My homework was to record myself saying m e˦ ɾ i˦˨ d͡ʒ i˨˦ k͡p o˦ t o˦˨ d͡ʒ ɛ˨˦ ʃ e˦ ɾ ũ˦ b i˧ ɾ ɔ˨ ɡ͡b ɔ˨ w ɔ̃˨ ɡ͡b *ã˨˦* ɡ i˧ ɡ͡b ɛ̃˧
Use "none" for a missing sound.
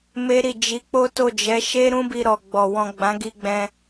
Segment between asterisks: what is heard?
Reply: ã˨˦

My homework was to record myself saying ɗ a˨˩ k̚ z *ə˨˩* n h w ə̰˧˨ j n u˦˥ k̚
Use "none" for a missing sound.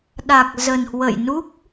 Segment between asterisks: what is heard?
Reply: ə˨˩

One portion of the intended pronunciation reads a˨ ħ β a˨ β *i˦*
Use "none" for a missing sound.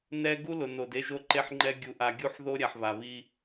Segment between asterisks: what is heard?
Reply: i˦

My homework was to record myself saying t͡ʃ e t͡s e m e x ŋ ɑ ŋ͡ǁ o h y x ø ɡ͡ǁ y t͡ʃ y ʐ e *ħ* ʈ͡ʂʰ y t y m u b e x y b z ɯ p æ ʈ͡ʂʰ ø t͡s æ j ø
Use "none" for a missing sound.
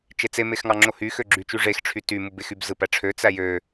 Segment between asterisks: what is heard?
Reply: x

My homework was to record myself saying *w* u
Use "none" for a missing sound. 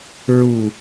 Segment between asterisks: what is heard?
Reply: ɹ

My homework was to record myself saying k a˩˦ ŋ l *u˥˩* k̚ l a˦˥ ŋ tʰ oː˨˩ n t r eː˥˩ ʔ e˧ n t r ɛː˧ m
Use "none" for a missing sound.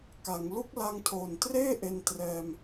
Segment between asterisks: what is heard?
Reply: u˥˩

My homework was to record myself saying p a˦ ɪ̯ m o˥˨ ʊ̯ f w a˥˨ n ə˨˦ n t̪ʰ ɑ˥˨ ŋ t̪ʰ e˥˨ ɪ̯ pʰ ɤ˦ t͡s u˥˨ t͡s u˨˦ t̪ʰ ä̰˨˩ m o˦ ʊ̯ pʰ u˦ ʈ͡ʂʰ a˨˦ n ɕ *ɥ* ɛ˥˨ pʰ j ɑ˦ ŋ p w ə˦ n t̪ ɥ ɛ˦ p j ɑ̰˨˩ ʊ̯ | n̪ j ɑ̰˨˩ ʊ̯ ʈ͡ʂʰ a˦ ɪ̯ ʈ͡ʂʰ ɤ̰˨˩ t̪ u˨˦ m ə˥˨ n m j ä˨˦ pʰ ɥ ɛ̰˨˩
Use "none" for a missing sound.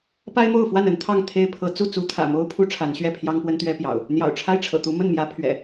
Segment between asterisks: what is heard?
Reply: ɥ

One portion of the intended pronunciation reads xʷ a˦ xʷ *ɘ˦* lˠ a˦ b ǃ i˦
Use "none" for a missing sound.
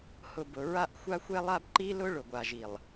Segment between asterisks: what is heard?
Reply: ɛ˦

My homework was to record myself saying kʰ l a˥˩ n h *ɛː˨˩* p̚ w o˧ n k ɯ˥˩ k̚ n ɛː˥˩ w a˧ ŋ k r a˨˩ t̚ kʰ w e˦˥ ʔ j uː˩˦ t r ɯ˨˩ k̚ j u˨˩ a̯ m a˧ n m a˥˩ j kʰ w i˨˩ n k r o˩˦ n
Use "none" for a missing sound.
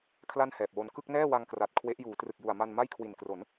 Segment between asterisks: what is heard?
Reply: ɛː˨˩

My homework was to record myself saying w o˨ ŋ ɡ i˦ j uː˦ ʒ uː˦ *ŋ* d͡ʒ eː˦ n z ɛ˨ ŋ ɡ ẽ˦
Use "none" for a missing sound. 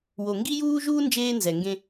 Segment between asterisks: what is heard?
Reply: n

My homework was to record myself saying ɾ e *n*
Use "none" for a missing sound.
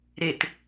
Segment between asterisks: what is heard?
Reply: t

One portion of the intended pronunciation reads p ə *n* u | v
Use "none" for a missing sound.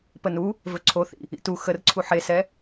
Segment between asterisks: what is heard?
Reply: n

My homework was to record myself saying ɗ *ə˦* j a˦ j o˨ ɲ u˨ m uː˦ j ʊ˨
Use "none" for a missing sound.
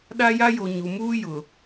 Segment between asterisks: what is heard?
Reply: a˦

